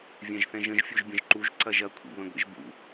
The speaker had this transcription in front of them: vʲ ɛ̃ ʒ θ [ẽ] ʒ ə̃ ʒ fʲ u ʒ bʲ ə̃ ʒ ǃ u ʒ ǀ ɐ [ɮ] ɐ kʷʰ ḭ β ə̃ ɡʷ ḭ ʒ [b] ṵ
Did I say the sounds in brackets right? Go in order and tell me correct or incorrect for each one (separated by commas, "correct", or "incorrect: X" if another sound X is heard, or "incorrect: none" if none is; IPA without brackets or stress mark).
incorrect: ɛ̃, incorrect: ʒ, correct